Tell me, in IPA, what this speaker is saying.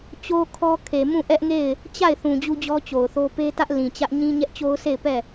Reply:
t͡ɕ o˦ kʰ ɔ˦ kʰ e˨ m ũ˦˨ ʔ ɛ˦ ʔ ŋ e˦˨ ɪ̯ | t͡ɕ a˦˨ ɪ̯ θ ũ˨ d͡ʑ u˦ d͡ʑ ɔ˦ t͡ɕ o˨ ʊ̯ θ o˦ p e˦ t ä˦ ʔ l ĩ˨ t͡ɕ ä˦ ʔ ɲ ĩ˦ ɲ ɛ˦ ʔ t͡ɕ o˦ ʊ̯ sʰ e˦˨ ɪ̯ p ɛ˦˨

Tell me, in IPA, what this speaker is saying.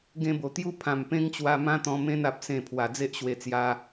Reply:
ɡ ẽ˧ b o˨˩ t̪ j u˦ pʰ ã˨˩ m p ẽ˦ ŋ t͡ɕ w a˧ m ã˦ t̪ ɔ̃˧ m ẽ˧ n a˨ p̚ s ẽ˨˩ pʰ w a˨˩ d͡z e˦ ʔ ɕ w e˧ t͡s j a˧

